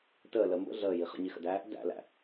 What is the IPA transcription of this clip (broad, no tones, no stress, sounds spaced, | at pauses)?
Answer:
t əː l ə m b ə̰ ɮ əː j i χ ə̰ ɲ i x ə̰ d æː | d æ̰ l æ̰